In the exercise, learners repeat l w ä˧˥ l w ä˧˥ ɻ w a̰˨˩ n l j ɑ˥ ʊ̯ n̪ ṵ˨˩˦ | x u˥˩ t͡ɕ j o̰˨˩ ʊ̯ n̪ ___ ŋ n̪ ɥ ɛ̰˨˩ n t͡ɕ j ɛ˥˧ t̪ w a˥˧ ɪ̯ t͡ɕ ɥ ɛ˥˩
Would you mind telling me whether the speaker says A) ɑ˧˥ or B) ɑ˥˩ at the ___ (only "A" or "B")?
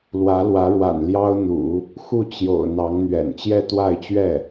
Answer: A